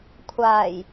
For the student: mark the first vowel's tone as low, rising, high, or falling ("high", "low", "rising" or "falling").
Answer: low